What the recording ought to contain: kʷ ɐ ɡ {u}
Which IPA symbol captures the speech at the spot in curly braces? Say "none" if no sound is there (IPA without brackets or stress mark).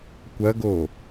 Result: o